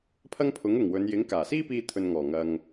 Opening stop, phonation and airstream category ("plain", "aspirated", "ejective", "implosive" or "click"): aspirated